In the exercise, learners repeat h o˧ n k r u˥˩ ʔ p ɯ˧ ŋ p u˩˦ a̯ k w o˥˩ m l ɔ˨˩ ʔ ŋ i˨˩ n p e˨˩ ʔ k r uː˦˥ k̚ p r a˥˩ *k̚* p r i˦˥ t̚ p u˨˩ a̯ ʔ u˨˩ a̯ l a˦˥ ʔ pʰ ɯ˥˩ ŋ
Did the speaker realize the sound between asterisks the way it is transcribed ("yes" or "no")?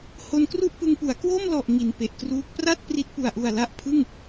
no